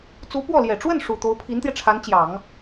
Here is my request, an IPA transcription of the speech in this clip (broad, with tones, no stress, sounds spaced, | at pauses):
t͡s u˧˥ p w ɔ˥˩ l j ɛ˨˩ ʈ͡ʂ w ə˥˩ n ʂ u˨˩ t̪ o˧˥ ʊ̯ pʰ i˧˥ n t̪ j ɛ˧ ʈ͡ʂʰ a˧˥ n t͡ɕ j ɑ˨˩˦ ŋ